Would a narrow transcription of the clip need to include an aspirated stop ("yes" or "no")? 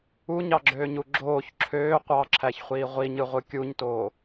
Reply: yes